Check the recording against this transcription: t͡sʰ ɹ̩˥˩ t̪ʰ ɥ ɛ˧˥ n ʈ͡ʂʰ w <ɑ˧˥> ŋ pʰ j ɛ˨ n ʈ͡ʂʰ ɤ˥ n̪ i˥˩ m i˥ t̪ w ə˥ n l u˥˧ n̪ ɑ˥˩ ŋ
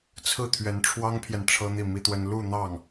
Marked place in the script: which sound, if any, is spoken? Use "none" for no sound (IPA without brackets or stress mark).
ɑ˥